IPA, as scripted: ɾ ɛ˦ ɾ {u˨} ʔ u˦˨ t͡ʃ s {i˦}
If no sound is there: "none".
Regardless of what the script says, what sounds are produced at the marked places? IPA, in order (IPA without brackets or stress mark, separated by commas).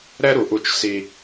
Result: u˨, i˦